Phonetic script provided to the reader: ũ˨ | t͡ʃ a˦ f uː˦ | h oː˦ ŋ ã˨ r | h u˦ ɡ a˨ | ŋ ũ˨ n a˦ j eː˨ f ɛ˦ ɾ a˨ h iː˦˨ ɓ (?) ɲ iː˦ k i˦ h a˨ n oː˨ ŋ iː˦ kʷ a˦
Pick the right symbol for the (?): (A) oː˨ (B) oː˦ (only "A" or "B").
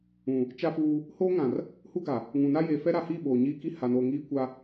A